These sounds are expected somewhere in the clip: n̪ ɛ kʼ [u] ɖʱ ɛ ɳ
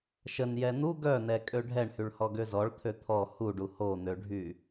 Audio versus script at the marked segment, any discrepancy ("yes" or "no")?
yes